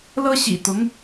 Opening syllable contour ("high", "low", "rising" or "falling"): high